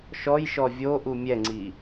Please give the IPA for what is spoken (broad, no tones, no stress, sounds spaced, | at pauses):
ʃ ɔ j ʃ ɔ vʲ o ʔ u mʲ ɛ ŋ͡ǀ i